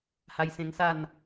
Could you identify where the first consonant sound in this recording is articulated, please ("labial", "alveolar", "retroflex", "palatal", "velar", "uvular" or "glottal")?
glottal